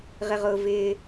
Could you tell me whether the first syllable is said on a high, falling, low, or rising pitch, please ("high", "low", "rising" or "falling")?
high